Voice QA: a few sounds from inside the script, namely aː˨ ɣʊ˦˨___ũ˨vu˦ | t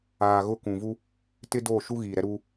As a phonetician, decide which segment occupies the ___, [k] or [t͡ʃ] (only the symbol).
k